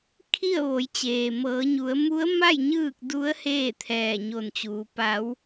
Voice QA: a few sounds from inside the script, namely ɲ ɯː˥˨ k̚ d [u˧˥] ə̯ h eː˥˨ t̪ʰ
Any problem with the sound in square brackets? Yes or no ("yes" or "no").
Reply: no